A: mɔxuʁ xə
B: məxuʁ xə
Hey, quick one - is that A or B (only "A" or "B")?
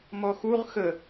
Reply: A